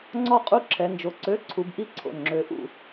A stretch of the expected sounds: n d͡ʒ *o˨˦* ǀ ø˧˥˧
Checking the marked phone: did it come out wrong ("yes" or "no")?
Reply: no